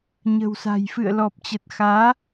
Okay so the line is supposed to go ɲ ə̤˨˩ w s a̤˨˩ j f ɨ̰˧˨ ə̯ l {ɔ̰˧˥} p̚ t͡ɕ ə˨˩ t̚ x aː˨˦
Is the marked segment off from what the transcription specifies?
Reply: yes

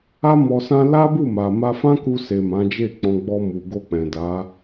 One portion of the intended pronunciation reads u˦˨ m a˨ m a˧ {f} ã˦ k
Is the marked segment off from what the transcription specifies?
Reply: no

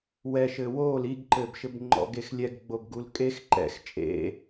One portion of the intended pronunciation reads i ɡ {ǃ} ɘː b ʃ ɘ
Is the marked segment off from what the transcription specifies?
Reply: no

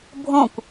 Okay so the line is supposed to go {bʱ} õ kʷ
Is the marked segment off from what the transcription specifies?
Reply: no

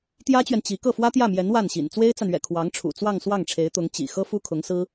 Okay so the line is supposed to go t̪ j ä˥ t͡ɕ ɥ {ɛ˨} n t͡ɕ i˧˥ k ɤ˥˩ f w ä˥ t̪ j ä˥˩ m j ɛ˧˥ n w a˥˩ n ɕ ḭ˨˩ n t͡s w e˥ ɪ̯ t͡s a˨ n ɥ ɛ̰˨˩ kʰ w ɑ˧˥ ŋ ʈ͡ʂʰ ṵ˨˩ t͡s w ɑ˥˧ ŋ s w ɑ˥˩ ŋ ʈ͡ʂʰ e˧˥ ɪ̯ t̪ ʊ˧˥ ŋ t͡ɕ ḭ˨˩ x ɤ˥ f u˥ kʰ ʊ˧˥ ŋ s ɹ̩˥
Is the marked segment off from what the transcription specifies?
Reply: no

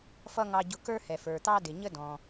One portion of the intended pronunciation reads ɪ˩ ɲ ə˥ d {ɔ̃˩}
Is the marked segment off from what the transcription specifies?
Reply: no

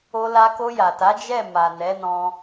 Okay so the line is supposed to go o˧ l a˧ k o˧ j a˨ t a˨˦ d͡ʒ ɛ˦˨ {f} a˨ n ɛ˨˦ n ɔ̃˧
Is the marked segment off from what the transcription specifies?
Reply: yes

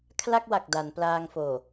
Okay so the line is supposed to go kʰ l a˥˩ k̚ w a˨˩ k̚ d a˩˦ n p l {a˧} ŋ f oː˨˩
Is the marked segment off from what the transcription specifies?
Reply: yes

